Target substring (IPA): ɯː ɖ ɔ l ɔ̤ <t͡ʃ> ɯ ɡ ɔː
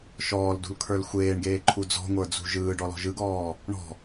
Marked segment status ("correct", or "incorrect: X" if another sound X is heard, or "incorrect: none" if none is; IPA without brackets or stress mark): incorrect: ʒ